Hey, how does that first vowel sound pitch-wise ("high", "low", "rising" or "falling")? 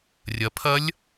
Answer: rising